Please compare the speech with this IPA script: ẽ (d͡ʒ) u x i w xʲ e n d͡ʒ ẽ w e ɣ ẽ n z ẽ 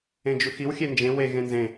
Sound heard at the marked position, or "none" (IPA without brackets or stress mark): d͡ʒ